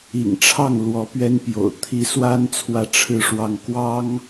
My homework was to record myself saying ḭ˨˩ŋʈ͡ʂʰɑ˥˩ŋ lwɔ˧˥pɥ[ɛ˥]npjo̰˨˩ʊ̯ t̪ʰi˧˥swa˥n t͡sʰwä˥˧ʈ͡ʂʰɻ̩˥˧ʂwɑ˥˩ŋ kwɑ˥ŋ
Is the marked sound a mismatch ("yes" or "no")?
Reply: no